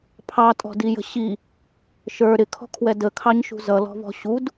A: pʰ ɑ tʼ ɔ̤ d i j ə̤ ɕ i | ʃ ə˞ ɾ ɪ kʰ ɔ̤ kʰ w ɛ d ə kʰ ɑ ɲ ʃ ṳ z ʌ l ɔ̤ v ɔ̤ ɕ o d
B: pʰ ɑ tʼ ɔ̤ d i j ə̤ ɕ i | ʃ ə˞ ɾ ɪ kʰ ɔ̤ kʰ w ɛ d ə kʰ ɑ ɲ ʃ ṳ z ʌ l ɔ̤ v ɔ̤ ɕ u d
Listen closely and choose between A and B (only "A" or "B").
B